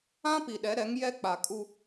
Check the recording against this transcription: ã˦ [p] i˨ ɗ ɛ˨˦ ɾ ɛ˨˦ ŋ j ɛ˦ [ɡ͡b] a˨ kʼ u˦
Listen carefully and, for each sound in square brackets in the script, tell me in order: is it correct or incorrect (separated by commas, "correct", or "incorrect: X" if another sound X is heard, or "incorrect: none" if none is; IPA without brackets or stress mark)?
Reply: correct, incorrect: k͡p